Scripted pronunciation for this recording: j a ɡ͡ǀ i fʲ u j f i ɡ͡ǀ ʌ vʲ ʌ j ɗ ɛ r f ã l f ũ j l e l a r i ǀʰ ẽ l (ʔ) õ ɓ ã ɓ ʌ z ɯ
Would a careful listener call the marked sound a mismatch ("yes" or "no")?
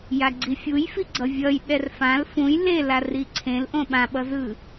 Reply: no